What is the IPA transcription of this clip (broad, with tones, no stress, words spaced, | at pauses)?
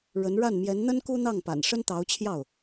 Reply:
ɻə˧˥n ɻa˥˩nmjɛ˧˥n n̪ə˥n ku˥n̪ɑ˥˩ŋpa̰˨˩nʂə˥n t̪ɑ˧˥ʊ̯t͡ɕʰjɑ˥˩ʊ̯